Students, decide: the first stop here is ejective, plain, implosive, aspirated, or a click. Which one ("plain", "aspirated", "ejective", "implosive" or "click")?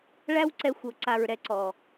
click